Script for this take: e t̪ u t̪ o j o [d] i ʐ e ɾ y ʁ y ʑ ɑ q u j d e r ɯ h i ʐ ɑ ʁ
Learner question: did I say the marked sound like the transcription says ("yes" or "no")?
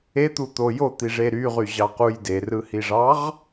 no